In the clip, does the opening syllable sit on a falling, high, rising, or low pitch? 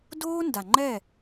high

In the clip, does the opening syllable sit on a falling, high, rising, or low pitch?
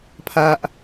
low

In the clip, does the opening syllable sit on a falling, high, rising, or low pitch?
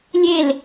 falling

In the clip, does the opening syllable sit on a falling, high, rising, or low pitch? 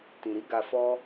low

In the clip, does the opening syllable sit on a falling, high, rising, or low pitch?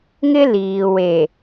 high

